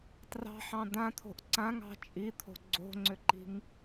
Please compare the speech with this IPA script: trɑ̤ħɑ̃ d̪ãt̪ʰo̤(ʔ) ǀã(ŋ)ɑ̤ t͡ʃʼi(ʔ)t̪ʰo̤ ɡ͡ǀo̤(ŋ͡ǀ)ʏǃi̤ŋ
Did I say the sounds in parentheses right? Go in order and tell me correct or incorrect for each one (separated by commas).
correct, correct, incorrect, correct